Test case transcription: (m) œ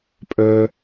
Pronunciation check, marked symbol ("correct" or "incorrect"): incorrect